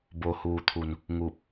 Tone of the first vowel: low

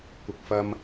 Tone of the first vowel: low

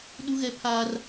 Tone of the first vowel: high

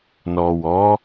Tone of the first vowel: low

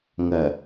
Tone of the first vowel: low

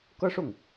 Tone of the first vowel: high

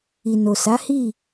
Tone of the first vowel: low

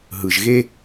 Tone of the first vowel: low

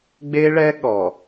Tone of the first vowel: high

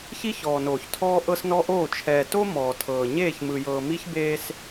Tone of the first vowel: high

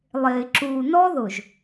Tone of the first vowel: low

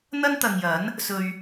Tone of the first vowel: high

